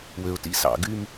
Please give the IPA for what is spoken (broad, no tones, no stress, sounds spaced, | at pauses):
w ø ʊ̯ t ḭ s ɑ̰ ɡ y m